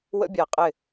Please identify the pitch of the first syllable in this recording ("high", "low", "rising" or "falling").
high